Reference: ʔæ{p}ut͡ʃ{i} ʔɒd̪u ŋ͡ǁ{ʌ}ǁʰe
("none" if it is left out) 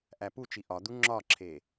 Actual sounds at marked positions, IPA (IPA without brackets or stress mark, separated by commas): p, i, ɒ